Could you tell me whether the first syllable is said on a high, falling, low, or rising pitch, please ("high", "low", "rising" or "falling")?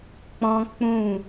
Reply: high